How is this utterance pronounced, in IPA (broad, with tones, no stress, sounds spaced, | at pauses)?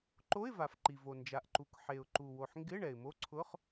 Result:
ǃ o˧˥˧ ɪ̯ v a˩ f ǃ i˩ v o˩ n d͡ʒ a˩ ʔ ǃ u˩ k ħ e˩ ʊ̯ ǃ u˩ w o˩ ħ ŋ ɡ ɪ˧˥˧ ɳ ɛ˩ ɪ̯ m o˧˥˧ ǀʰ ʊ˧˥˧ χ